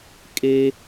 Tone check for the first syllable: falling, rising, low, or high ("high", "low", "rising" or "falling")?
high